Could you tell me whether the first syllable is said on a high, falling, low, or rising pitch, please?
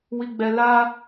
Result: low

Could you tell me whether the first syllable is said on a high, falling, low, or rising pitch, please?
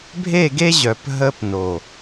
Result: falling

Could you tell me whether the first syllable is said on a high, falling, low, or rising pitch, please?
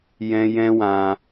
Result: high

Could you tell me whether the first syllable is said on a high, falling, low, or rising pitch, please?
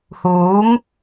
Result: rising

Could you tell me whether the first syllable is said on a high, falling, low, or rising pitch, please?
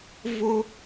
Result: high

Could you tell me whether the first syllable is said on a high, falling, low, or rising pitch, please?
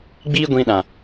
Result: high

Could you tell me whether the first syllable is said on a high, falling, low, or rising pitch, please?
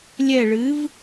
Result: falling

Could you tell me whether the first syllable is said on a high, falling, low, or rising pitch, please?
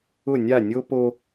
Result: falling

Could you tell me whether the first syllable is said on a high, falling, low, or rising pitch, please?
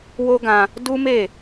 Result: high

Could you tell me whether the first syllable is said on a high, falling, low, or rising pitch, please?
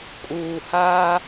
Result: low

